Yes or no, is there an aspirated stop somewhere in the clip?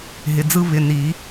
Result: no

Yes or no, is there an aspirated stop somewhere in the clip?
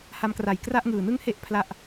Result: yes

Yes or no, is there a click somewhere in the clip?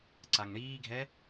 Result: yes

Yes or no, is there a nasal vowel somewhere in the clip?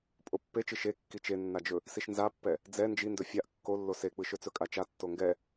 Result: no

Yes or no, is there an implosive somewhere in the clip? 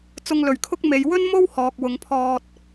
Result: no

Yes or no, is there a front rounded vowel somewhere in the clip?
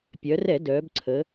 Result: yes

